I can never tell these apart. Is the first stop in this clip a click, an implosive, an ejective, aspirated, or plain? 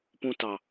plain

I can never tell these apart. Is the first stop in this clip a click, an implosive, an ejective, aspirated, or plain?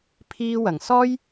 aspirated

